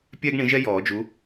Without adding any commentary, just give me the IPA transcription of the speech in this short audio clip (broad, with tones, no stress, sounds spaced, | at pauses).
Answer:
pʲ ɛ˥ ɡ ɳ ĩ˨˥ ʒ ɛ˥ j ɔː˨˩˦ d͡ʒ u˨˥